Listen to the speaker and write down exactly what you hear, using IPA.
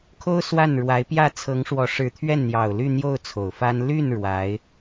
kʰo˥ʊ̯ swa˥˩n ɻwa˧˥ɪ̯pjä˥˩ t͡sʰɤ˧˥ŋʂwɔ˧˥ʂɻ̩˧˥t̪ʰɥɛ˥˩n n̪jɑ˨˩ʊ̯ly˥˧ n̪jo˥˩ʊ̯ t͡sʰo˨˩ʊ̯fa˥n ly˥˩n ɻwa˧˥ɪ̯

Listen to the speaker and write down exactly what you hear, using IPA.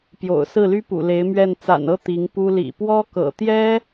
pjo̰˨˩ʊ̯sɹ̩˥˩ly˥pṵ˨˩ le˧˥ɪ̯mɥɛ˥˩n t͡sa̰˨˩nɤ˥˩ t̪i˧˥ŋpu˥ lḭ˨˩pwɔ˥kɤ̰˨˩t̪jɛ˥

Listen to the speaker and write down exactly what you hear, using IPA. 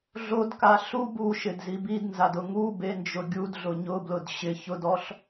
ɮodka ɬu buʃɪdzi bidnzadʊ ŋu bend͡ʒʊ ɡʲudɮʊ ɲʊblʊd ɕɪ çʊdɔɬ

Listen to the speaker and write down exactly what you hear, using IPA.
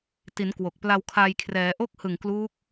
ti˩˦n kwo˨˩k̚pla˧wkʰaː˧j kʰrɛː˩˦ʔo˦˥k̚hɯ˨˩ŋ klu˦˥k̚

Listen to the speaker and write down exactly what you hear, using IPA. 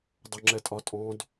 dˤɵŋ͡ǁɛtʼɒtʼɔ̃d

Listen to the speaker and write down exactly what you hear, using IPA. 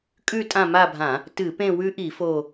kʼʉ˦˨ tʼã˦˨ma˦˨bʱã˧˩˧ | tɨ˧˩˧pẽ˦˨wʉ˧˥ʔi˧˩˧ fo˦˨

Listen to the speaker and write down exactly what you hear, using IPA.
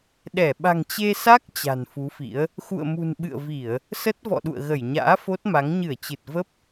ɗɛ˧˩ ɓa̤˨˩ŋt͡ɕe˧sa˦˥k̚ t͡ɕa̤˨˩nfu˨˦fḭ˧˥ə̯ | xṵ˧˨ə̯mṳ˨˩n ɓɨ̰˧˨ə̯vi˧˩˨ə̯ | sə˦˥t̚vɔ̰˧˨ɗṵ˧˨ə̯ɣə˧˩j ɲa̰ː˧˥fo˦˥t̚ma˨˦ŋ ɲɨ˧˩ə̯t͡ɕɨ˨˩t̚ və˦˥p̚

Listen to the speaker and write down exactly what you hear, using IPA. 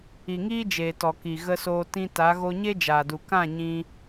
i˨ŋiː˦d͡ʒeː˨tɔ˨ ki˨ ɣə˧soː˧ tĩ˧ ta˨˦ɣo˦ ɲe˦d͡ʒaː˨du˨ kã˦˨ɲĩ˧

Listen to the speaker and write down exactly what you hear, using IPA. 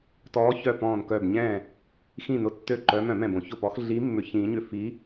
tɔː˨˦ çœ˧˩ pɔ̃ː˧˩nkœ˧˩b ɲɛ̃˧˩ | xĩ˧˩nʊ˨˦tːø˧˩ ǃœ˨˦mœ̃˧˩˧mɛ̃˧˩b õ˧˩˧çʊ˧˩pɔ˨˦x ɮi˨˦ mːʏ˨˦çĩː˨˦ɲʏ˧˩ fi˨˦

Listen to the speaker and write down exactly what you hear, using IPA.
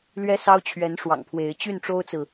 lɥɛ˦sɑ˦ʊ̯t͡ɕʰɥɛ˨˦n ʂwɑ̰˨˩ŋpʰwe˨˦ɪ̯ t͡ɕy˥˨nʈ͡ʂo˦ʊ̯t͡sɹ̩˨

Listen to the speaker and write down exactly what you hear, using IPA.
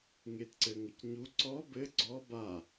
ŋetǀɘŋəcɲu ǀɔ bɘ ɡ͡ǀɔ ba

